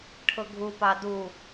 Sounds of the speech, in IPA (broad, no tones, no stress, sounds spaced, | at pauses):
ʈʰ ʊ ɡʱ u p ɑ d u